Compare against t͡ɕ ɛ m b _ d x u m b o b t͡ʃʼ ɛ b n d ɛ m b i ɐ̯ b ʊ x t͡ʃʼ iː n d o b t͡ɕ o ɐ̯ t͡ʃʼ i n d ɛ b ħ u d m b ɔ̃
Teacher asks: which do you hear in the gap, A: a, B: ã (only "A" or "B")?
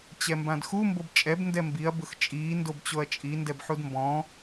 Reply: B